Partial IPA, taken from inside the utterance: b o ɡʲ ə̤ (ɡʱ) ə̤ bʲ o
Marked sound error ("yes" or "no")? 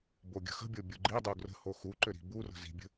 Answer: yes